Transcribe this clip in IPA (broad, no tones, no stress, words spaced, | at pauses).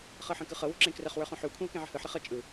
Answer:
χɤħə̃kɯχɤ wo̤ǁẽkrəχ wə˞χõħʉw kʷʰẽwkẽʕə̤hɯħ ɾəχɤ t͡ʃʼɯ